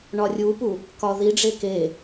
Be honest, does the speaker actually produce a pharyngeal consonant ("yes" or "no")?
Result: no